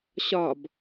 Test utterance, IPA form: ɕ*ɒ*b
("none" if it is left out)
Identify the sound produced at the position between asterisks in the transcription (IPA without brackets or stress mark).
ɒ